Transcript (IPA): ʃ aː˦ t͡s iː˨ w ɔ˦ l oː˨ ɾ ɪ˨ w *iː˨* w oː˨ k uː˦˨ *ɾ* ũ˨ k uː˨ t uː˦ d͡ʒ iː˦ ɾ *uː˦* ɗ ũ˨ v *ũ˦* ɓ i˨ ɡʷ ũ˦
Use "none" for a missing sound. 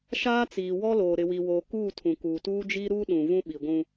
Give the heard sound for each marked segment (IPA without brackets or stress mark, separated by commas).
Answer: i˨, tʰ, uː˦, ũ˦